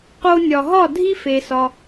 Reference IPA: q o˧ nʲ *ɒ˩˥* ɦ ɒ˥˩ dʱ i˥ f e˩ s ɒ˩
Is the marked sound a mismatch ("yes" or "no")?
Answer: yes